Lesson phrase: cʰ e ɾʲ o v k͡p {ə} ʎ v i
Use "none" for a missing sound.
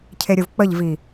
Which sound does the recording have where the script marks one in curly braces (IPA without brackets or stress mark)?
ə